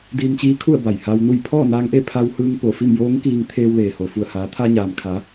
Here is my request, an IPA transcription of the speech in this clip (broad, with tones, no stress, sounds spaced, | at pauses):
d iː˧ m t͡ɕ iː˧˥ kʰ u˥˨ ə̯ b a˧˩ j h a˧ w n u˥˨ j pʰ ɔː˥˨ n aː˧ ŋ ʔ e˥˨ pʰ a˧ w h ɯː˧ ŋ p o˧˩ f i˥˨ m j oː˧˥ ŋ k iː˧ ŋ t̪ʰ eː˧ w l eː˩ h o˩ f u˧˩ ə̯ h aː˩˧ t̪ʰ a˧ ɲ aː˩ m kʰ a˩˧